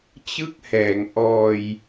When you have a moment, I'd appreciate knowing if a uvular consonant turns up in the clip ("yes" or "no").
no